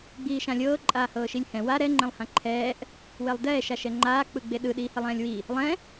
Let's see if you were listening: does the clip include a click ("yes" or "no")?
yes